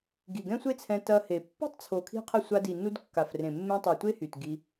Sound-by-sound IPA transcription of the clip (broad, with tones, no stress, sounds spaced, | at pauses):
ɡ i˨ ɡ ɛ̃˦ sʷ e˦ t͡sʰ ɛ̃˧ t ɐ˧ h e˨ pː o̤˦ tˤ t͡sʰ o˨ kʰ i̤˧ qʰ ə˧ sʷ a˧ d i˨ n u˧ d kː a˨ f r ẽ˨ mː ẽ˧ tˤ ɛ˨ tʷ e˦ h y˨ t ɡ i˧